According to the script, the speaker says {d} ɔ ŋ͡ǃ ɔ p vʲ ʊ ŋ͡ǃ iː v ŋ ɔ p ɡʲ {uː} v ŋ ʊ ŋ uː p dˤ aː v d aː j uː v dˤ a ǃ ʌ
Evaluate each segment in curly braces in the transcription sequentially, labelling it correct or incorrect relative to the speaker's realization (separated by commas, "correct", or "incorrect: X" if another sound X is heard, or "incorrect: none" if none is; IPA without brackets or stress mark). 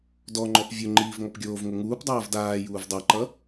correct, incorrect: oː